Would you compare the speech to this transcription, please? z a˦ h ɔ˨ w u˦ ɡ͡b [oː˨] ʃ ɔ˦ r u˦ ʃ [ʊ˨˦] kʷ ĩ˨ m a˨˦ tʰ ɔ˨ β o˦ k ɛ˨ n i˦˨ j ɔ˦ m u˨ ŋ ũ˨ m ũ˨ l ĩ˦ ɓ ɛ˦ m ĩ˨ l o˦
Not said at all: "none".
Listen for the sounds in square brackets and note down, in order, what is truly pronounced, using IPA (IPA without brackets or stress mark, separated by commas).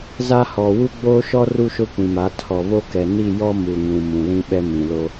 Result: oː˦, ʊ˦